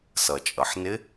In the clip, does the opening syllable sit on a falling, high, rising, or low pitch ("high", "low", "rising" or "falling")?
low